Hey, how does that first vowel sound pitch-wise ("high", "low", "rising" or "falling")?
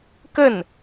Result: falling